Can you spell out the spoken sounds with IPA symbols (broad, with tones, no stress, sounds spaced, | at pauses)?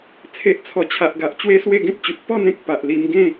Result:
t͡sʰ e˨ ʔ t͡sʰ ɔ˨˩ t͡ɕʰ a˨ ʔ ɡ a˨ ʔ t͡ɕ w e˦ s w e˥˧ ɡ ẽ˦ t̚ t͡ɕ u˨ t̚ p ɔ˥˧ n ẽ˦ k̚ p a˨ ʔ l i˧ m ɡ ẽ˥˧